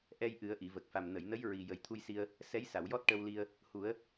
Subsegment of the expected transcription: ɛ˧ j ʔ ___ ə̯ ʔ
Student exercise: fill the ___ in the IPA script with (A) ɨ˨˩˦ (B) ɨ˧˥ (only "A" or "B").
A